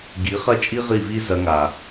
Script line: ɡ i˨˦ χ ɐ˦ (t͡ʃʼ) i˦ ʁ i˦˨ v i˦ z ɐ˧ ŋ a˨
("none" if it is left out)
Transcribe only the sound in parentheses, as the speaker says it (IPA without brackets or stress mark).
t͡ʃʼ